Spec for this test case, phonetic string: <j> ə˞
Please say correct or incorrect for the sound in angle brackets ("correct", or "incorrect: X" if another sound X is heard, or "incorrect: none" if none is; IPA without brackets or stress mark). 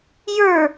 correct